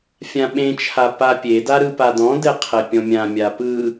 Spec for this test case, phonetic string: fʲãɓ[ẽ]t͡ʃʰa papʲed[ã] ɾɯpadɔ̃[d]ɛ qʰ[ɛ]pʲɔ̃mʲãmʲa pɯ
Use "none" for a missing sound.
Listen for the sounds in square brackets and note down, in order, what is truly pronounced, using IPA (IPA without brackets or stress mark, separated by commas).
ẽ, a, d, ɛ